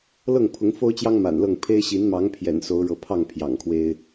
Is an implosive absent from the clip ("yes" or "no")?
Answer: yes